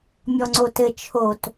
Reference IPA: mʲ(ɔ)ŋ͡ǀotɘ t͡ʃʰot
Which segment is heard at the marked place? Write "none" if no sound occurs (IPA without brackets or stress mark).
ɔ